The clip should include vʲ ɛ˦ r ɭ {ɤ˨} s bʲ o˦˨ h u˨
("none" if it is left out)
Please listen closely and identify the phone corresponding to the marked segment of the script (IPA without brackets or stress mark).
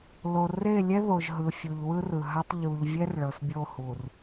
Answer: ɤ˨